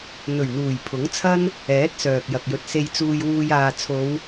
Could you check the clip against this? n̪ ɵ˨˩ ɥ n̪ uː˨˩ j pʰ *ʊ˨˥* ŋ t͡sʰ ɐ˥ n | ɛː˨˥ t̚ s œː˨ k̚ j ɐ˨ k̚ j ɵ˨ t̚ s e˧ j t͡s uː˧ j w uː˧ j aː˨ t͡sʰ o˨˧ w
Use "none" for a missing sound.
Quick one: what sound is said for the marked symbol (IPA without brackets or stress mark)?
ʊ˨˥